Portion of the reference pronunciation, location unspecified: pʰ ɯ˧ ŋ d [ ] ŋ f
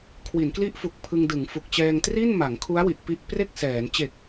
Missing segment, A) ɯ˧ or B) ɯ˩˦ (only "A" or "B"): B